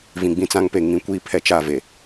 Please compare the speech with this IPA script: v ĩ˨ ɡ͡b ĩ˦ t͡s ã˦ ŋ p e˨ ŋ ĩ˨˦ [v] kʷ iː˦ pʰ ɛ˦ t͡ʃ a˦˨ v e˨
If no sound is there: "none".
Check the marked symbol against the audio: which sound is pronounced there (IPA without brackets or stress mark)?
none